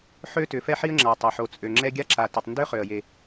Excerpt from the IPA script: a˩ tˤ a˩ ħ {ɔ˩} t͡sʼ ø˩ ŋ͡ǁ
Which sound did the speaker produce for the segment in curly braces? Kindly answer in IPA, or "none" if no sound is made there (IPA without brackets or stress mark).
o˩